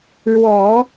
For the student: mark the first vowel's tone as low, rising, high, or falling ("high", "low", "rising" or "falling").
low